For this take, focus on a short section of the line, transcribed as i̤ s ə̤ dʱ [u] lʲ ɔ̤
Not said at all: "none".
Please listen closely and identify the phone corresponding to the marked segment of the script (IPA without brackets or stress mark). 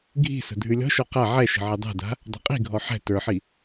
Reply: ʉ